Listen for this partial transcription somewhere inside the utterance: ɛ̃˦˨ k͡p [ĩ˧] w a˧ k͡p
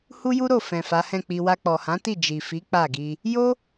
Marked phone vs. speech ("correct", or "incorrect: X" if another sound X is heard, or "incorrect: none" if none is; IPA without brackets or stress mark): incorrect: i˧